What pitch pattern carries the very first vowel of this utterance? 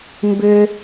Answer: high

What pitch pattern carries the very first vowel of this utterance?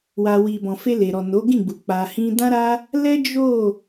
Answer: low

